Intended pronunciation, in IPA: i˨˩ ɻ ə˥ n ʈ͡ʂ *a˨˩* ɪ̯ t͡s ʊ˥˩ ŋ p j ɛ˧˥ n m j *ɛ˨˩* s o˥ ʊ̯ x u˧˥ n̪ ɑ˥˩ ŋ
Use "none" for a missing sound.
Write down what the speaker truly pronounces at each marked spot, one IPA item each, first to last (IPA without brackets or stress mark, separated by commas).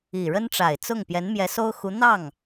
a˨˩, ɛ˧˥